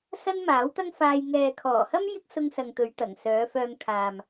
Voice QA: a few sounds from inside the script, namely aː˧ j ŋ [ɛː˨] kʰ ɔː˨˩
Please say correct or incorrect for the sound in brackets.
correct